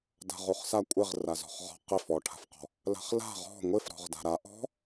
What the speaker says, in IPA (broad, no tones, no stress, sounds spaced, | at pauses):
d a̤ ʁ u χ s a kʷʼ ɪ ʁ r a z ɔ̤ χ ʁ ɔ̤ q ɪ f ɔ ʈʰ a̤ f q ɔ̤ | l a̤ χ l a̤ ʁ ɔ̤ ŋʷ ɪ f ɾ ɔ̤ ʁ d a̤ ɾ a ʔ ɔ̤